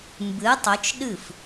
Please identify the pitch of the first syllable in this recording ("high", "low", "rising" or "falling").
rising